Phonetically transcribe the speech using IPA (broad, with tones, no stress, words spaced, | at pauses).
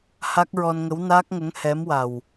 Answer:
ha˦˥k̚ɹɔ˧nŋə˧˥w naː˦˥k̚ŋə˧˥ŋ hɛ˧˥mwa˨˩w